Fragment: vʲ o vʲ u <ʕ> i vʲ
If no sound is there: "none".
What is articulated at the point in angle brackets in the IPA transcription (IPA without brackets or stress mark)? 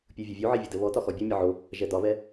ʕ